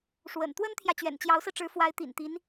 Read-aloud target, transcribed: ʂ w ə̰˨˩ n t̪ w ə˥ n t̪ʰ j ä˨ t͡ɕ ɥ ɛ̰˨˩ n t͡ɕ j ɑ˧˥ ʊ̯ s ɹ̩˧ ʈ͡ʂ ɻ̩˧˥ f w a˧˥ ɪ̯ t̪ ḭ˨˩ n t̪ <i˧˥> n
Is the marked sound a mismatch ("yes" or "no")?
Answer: no